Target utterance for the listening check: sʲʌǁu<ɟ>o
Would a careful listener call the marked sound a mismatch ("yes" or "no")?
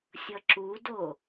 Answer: yes